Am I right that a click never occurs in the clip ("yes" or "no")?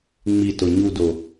yes